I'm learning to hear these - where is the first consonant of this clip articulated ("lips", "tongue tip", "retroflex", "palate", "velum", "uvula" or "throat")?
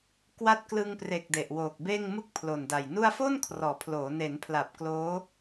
velum